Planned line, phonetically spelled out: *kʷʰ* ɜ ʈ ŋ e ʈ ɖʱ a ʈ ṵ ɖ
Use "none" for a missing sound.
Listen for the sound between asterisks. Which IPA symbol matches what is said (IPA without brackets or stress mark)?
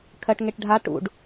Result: kʰ